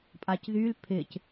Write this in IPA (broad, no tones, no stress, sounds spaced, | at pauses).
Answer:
pʼ a c ð y l pʰ ɪ c